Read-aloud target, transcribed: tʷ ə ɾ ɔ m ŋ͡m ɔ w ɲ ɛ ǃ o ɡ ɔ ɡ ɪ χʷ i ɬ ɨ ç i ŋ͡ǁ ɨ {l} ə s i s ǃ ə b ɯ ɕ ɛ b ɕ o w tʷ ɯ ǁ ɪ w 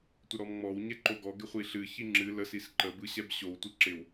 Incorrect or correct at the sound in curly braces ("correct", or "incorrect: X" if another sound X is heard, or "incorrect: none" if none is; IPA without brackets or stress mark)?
correct